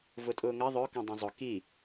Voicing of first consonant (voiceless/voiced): voiced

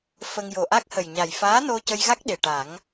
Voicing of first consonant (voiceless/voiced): voiceless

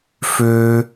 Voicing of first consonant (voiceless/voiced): voiceless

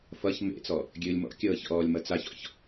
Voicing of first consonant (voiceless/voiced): voiceless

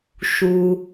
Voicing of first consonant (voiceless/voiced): voiceless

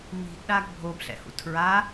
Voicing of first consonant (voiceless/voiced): voiced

